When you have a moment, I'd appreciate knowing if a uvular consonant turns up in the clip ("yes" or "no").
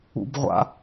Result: yes